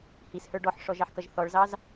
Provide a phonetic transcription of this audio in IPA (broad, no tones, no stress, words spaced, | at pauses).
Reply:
hishə˞ ɖɔħʂɔʒ ɑħkʌʒθɔɭzɑz